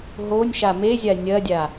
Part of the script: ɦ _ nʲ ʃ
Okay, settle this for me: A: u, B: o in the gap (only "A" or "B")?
B